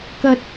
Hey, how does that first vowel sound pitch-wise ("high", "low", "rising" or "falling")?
low